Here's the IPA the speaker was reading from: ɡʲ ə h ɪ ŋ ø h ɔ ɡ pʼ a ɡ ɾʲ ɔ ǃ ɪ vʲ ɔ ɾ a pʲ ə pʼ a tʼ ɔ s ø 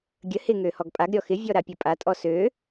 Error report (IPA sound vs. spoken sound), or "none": ǃ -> x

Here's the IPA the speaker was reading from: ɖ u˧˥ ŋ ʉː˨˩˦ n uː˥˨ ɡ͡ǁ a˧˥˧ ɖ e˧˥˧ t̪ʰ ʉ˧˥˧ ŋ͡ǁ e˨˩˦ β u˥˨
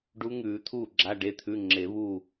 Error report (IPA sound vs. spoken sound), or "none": n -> t̪ʰ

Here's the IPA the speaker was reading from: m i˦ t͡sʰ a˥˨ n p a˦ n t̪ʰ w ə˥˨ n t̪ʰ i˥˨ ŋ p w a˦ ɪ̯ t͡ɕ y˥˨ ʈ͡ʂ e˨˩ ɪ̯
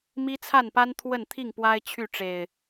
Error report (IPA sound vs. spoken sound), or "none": t͡ɕ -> t͡ɕʰ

